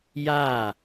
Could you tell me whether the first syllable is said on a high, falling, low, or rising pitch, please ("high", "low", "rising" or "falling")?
falling